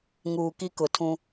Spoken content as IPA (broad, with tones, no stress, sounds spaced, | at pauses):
ŋ uː˨ k i˦ k ʊ˨ tʰ ũ˦